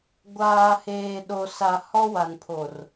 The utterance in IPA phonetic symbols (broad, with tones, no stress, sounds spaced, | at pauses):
ɡʷ aː˨ h eː˨ ɗ o˨ s a˨ h ɔ˦ w a˨ n pʰ o˨ r